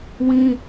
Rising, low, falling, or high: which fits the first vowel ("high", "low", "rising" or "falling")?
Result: high